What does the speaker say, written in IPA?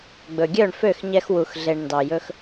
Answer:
ɡ͡bɵ˨ɡʲœ˦˨ɳfø˦˨xɲɛ˧x wu˨xɮe˨ɳ ndɑ˨jɵ˧x

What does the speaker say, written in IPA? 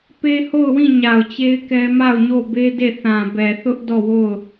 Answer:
pe˦ho˦˨ʊ̯wĩ˦˨ ɲa˨ʊ̯t͡ɕe˦ɪ̯kɛ˦ ma˦˨ʊ̯ɲo˦˨be˦ de˦˨θã˨bɛ˨ θʊ˦ʔ dɔ˦˨wo˦˨ʊ̯

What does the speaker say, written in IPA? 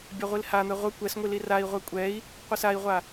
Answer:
bʲaʁʷilhan̪ɛ ʁʷə kʷɛsŋʷi lirai̯ʁʷɛ kʷʼɛi̯ | qʷəsai̯ʁʷa

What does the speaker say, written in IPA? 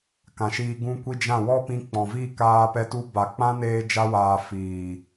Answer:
kã˨ʃiː˧ ɡũ˧kʷi˧ d͡ʒã˦˨ wɔ˦pĩ˧ k͡pɔ̃˨vi˦˨kaː˧pɛ˧ tu˧ ba˨ k͡pã˦neː˧ d͡ʒa˧waː˨ fiː˨

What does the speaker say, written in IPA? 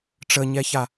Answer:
ʈ͡ʂəɲɛça

